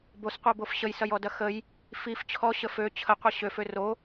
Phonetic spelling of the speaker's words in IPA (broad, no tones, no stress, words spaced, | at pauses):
bosqʷɜbof ɕəjsɐjɔdɐ xəj | fif t͡ɕʰɔɕə fø t͡ɕʰəqʷɐ ɕøfø ro